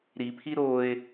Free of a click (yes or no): yes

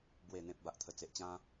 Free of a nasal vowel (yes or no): no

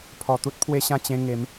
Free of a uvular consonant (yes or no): yes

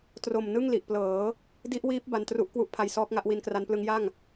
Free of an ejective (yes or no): yes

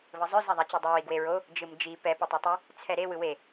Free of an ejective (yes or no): yes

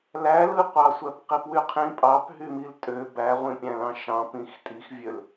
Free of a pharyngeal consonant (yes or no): yes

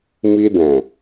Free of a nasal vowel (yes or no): no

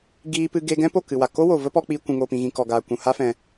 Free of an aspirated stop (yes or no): yes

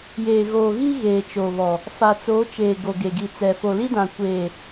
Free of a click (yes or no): yes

